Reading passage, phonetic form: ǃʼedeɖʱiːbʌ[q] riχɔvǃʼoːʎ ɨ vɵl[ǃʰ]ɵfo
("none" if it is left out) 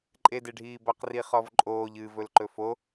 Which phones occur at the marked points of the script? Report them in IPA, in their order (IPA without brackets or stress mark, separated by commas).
q, ǃ